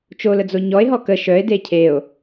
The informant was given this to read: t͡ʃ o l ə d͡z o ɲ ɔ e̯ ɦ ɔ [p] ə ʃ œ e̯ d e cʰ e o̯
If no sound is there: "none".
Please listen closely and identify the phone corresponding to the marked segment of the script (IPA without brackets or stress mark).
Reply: k